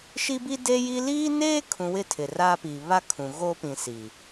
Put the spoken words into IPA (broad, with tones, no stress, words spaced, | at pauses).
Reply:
ʃi˦bi˦de˦ji˦ liː˦neː˦kʰũ˨ wɪ˦tʰɪ˨raː˦pi˨ βa˦ kʰũ˨ ɣo˦pĩ˨ si˨